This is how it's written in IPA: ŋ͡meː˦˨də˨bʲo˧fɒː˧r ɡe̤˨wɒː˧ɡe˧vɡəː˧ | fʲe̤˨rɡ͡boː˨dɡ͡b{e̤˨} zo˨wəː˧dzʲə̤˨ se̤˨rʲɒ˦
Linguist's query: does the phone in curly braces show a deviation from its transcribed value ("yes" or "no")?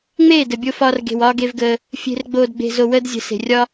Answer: no